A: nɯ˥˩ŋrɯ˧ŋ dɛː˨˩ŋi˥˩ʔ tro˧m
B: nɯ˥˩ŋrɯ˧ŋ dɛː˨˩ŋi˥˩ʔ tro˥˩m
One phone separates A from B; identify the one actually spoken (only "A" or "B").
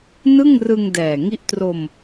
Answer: A